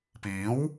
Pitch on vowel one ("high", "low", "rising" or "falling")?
rising